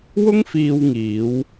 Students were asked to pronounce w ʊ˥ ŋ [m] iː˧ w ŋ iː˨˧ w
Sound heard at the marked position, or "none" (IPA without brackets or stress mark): f